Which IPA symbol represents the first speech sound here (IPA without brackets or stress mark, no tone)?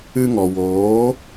ɨ